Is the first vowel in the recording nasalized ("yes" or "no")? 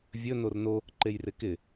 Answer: no